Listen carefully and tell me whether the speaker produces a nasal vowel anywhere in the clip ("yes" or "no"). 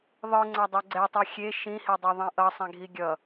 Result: yes